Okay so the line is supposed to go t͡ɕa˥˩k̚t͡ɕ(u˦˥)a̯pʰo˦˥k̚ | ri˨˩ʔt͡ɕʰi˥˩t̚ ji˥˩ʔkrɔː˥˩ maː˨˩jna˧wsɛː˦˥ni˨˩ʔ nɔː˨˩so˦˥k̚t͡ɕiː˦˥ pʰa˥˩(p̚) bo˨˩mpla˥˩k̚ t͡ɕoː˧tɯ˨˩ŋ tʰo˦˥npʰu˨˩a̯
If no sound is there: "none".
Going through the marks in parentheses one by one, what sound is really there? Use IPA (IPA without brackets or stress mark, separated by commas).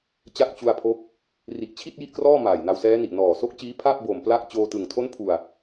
u˧, p̚